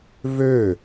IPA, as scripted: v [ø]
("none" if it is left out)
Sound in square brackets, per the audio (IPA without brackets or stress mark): ø